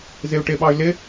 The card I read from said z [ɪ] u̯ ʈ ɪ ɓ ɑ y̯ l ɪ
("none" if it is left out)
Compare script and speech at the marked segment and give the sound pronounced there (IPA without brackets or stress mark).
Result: ɪ